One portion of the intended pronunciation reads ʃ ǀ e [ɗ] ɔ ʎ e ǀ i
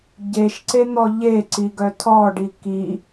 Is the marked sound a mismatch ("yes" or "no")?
yes